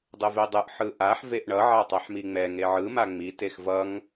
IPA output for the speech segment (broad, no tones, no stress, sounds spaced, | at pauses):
dˤ ɯ v e dˤ ɯ ʔ ħ ɯ ʔ a ħ v e ʔ ɳ ʌ ʕ a tˤ a ħ m i ŋ͡m ɛ ŋ e ʕ ɯ m a ŋ͡m i t e x v ʌ ŋ